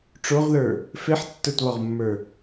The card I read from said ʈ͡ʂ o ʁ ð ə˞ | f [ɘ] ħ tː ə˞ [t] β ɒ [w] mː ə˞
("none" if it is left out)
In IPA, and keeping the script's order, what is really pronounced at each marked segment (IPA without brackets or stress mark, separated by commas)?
e, t, ʁ